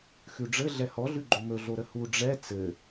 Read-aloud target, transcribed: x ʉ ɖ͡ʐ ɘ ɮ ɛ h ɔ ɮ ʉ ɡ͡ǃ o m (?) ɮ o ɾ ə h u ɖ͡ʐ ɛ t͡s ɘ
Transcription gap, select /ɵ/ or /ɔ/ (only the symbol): ɵ